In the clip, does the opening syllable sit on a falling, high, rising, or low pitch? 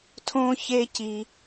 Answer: high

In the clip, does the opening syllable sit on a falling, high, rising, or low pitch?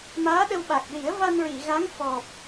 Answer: rising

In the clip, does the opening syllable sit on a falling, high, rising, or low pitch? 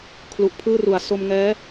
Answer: low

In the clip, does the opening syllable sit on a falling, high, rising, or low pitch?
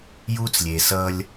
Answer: high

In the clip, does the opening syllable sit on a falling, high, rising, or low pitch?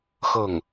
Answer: falling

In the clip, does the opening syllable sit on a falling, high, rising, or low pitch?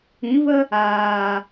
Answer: rising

